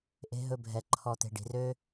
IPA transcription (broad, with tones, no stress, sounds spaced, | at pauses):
ʔ e̤˧ ɦ ɵ˧ bʱ ɛ˨ ǃʰ ɔ˨ t̪ e̤˨ ɖ i̤˨ r ø˦